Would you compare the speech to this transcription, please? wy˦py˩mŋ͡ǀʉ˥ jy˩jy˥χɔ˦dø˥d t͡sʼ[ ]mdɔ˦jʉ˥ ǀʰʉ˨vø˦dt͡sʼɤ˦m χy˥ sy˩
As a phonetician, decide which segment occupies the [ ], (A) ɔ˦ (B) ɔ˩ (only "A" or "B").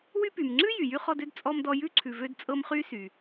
A